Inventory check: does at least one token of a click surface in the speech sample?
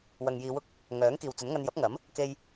no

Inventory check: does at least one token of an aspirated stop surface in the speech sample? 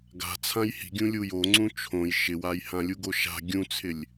yes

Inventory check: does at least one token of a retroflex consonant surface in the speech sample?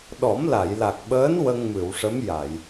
yes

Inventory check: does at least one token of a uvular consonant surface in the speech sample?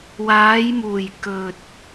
no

